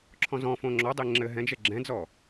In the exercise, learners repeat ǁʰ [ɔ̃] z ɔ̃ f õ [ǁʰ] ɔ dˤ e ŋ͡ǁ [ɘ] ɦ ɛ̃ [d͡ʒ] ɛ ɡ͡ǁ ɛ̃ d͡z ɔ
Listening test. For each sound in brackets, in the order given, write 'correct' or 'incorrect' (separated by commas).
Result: correct, incorrect, correct, correct